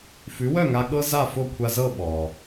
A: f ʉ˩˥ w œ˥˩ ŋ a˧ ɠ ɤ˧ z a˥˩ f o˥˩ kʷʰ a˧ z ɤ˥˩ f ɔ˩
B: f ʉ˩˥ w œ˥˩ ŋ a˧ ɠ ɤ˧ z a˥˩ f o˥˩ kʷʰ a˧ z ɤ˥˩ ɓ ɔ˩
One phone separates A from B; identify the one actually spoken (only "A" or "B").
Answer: B